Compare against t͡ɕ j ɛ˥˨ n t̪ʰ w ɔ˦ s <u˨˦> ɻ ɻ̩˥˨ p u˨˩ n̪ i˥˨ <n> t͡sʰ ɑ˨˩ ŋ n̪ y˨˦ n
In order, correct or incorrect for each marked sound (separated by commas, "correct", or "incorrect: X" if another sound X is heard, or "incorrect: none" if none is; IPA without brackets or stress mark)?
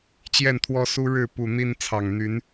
incorrect: u˦, correct